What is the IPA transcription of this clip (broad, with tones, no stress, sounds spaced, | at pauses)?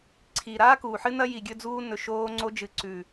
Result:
ǀʰ i˨ ɾ aː˦ k uː˨ ħ ɨ˦ n ɐ˦ j i˨ ɡʲ ɵ˧ d͡z uː˧ n ɵ˨ ʃ oː˧ ŋ͡ǀ o˧ d͡ʒ ɨ˨ ǀ ʉ˨